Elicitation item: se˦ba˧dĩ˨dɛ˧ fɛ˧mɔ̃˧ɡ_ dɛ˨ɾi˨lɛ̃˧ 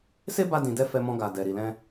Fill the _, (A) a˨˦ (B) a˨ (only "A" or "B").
B